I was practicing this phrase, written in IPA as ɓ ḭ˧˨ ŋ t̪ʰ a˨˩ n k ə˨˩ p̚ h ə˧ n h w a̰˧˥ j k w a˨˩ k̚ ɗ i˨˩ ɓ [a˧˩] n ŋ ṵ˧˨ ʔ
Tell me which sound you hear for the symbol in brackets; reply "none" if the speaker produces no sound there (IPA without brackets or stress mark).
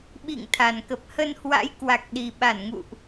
a˧˩